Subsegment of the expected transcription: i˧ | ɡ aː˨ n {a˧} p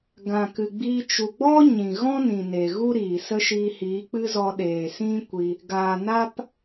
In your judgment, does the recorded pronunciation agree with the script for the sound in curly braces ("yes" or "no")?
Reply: no